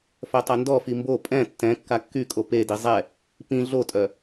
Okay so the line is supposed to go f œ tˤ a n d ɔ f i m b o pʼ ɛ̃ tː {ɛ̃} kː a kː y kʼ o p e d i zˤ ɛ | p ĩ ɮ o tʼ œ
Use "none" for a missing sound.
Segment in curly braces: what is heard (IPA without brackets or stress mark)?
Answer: ɛ̃